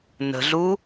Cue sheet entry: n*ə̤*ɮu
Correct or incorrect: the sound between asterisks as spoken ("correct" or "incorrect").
correct